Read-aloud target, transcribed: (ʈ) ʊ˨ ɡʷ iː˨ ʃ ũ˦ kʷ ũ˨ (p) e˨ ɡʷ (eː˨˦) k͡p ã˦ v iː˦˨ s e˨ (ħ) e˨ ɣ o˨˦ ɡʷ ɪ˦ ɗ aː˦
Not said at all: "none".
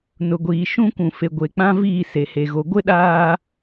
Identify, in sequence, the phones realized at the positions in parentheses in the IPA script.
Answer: n, f, e˨˦, h

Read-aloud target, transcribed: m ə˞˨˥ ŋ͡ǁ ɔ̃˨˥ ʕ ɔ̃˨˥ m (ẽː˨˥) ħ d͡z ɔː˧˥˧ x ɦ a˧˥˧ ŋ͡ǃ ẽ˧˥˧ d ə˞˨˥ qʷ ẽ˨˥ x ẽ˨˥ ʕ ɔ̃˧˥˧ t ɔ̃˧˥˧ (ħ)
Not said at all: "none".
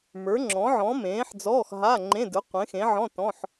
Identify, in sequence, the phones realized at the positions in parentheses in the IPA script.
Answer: ẽː˨˥, ħ

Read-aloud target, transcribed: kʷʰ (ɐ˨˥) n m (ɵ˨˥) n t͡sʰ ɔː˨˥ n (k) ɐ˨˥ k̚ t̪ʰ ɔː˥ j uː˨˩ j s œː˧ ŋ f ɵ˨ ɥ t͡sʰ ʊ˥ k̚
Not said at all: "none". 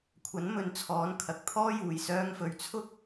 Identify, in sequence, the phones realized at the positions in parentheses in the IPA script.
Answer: ɐ˨˥, ɵ˨, kʰ

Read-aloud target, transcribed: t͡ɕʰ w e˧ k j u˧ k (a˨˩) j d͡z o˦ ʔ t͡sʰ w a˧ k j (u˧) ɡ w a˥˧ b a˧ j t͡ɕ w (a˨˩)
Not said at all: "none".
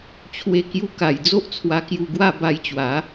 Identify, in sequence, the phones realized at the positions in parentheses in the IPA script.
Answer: a˨˩, u˧, a˨˦

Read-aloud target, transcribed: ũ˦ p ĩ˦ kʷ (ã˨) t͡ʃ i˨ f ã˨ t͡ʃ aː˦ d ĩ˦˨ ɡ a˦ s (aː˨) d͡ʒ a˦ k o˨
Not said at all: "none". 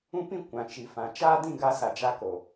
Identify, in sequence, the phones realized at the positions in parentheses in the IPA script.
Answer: ã˨, a˨

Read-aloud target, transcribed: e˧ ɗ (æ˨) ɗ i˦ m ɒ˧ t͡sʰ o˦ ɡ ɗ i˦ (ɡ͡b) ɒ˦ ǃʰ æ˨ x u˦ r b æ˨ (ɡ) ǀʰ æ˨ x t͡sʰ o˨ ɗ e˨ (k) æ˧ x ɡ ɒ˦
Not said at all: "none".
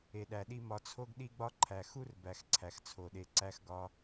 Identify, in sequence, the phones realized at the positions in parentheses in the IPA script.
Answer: æ˧, ɡ͡b, x, ǀ

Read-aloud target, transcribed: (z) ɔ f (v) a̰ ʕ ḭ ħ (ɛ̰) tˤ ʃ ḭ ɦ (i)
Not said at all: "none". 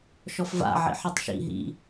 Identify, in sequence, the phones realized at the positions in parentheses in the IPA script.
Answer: ʃ, v, ɛ, ḭ

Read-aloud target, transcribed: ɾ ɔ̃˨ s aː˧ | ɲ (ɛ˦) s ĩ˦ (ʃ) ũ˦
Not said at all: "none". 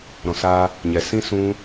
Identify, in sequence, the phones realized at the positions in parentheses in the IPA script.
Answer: ɛ˨, s

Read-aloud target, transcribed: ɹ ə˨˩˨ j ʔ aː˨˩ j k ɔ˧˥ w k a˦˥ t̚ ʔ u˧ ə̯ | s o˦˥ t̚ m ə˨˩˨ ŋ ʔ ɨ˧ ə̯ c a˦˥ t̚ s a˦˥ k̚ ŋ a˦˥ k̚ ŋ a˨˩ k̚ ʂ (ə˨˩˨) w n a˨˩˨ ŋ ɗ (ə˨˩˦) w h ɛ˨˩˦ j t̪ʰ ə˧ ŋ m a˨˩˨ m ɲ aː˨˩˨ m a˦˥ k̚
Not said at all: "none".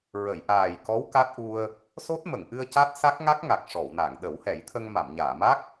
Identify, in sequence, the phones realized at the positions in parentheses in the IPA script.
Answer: ɔ˨˩˨, ə˨˩˦

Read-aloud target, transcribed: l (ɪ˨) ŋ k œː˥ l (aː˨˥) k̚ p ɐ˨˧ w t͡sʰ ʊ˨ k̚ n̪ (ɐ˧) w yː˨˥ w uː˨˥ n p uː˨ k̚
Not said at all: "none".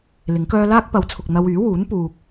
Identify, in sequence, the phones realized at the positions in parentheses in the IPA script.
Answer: ɪ˨˥, aː˥, ɐ˧

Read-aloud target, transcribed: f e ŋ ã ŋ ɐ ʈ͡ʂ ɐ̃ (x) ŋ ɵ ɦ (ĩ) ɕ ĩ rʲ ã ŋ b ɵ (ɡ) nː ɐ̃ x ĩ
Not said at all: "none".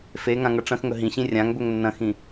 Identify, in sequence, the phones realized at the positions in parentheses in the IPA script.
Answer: x, ĩ, ŋ

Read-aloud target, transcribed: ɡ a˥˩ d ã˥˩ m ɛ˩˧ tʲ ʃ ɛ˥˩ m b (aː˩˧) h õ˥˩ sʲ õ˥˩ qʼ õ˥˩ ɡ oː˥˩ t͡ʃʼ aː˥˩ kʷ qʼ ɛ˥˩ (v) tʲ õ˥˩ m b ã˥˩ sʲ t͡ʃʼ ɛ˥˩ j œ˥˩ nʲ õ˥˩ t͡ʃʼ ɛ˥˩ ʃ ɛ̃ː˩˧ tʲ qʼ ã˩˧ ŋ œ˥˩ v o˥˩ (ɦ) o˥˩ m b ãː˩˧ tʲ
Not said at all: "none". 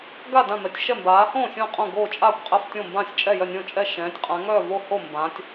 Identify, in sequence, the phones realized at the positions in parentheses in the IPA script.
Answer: aː˩˧, f, h

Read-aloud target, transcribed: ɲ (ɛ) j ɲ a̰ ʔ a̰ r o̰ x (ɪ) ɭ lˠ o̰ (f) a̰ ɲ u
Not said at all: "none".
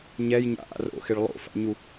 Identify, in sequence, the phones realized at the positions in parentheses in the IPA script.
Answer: ɛ, ɪ, f

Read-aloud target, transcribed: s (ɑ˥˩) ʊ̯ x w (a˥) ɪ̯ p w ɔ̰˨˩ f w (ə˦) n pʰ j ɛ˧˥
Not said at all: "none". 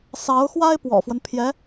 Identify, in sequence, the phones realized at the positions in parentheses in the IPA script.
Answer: ɑ˧˥, a˥, ə˦

